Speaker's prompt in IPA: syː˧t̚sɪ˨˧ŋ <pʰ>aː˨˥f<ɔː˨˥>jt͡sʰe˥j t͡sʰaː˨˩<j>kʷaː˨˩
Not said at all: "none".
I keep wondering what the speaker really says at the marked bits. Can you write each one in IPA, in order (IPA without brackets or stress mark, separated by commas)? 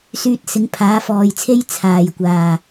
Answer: pʰ, ɔː˨, j